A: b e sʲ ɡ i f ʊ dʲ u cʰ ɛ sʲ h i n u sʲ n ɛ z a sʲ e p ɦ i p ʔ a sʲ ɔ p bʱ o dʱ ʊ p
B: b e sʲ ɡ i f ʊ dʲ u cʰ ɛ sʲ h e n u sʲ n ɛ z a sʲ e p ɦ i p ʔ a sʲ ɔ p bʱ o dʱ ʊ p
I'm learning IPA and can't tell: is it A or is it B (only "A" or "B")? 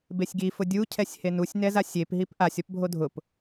B